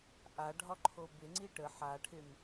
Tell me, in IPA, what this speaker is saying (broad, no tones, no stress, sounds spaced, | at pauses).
ʔ a ɖʱ ɒ ǃʰ o b ɪ ŋ͡ǀ i ʈ ə ħ a ʈʰ ɪ m